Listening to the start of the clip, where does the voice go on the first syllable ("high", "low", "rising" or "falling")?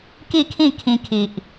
falling